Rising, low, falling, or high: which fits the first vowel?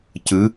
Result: rising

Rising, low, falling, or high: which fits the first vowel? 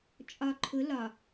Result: low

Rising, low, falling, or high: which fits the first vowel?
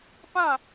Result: falling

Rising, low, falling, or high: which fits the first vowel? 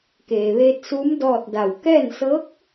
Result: low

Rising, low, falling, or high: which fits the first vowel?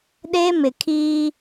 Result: high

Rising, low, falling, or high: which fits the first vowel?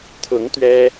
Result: rising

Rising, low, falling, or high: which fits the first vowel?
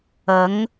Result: rising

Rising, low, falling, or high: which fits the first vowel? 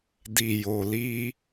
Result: low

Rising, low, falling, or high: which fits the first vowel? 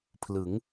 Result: rising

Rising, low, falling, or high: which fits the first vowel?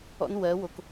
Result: high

